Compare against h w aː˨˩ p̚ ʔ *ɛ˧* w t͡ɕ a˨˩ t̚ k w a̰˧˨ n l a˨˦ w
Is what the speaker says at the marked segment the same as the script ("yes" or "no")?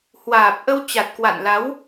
no